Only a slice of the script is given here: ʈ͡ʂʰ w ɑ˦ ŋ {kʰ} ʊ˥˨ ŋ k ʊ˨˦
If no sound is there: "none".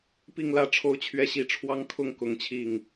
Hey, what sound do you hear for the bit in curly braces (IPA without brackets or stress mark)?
kʰ